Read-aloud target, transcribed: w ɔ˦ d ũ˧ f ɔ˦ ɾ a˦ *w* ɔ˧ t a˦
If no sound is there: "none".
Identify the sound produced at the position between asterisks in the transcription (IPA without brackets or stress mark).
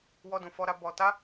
b